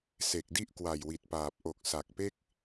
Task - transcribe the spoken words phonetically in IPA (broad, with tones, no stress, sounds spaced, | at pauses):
s e˨˩ k̚ d i˥˩ ʔ k w a˨˩ j w i˨˩ t̚ p aː˨˩ p̚ ʔ o˨˩ k̚ s a˨˩ k̚ p e˥˩ k̚